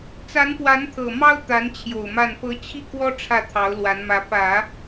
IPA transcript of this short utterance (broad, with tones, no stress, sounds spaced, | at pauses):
t͡s a˧˥ n p w a˧˥ n t̪ʰ ɤ˨˩ m ɑ˥ ʊ̯ t̪ a˧˥ n t͡ɕʰ j o˨˩ ʊ̯ m a˥˩ n p ɤ˧˥ t͡ɕʰ i˥˩ k w ɔ˥ ʈ͡ʂʰ ä˥˩ t̪ʰ ɑ˧˥ ʊ̯ l w a˧˥ n m ä˧˥ p ä˨˩˦